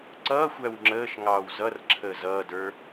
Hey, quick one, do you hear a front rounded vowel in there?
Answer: no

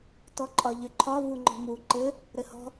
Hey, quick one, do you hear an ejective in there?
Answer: yes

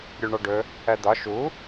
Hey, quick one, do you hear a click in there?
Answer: no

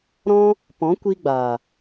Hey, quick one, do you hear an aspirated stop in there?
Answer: no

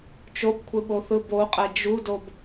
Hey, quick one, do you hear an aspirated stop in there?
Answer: yes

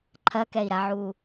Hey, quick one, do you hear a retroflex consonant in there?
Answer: no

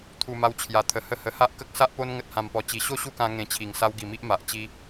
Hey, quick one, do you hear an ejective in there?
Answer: no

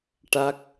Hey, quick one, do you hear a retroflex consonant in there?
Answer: yes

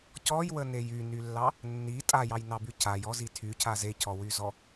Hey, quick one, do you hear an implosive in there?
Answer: no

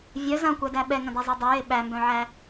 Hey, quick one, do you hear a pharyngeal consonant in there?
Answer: yes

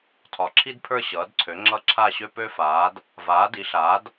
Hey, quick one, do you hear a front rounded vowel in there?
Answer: yes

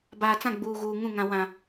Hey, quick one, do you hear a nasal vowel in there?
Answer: yes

